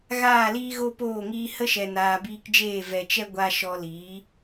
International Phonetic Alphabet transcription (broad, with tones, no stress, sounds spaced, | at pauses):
ɣ aː˦˨ l iː˦ ɣ o˦ p oː˦˨ ŋ iː˧ h ə˦ ʃ ɛ˨ n aː˨ b iː˧ k d͡ʒ eː˦˨ v ɛ˨ t͡ʃ ɛ˦ ɡʷ a˧ ʃ ɔ˧ l iː˨˦